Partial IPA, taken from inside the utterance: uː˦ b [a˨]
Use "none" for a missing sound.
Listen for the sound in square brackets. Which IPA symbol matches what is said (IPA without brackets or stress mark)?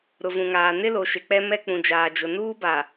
a˨